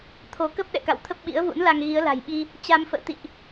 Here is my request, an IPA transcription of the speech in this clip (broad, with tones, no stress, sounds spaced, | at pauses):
t̪ʰ o˨˦ k ə˦˥ p̚ ɗ ɛ̰˧˨ k a̰˧˨ w t̪ʰ ə˦˥ p̚ ɓ ḭ˧˥ ə̯ v ṵ˧˥ n l a˧ ŋ ɣ i˨˦ ə̯ l a̤˨˩ j ɓ i˧ | t͡ɕ a˧ m f ə̰ː˧˨ t̪ ḭ˧˨ ʔ